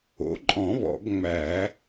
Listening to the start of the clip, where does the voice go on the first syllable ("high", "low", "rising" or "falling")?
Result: rising